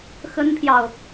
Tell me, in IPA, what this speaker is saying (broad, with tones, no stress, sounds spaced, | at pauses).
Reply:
x ə˥ n pʰ j ɑ˨ ʊ̯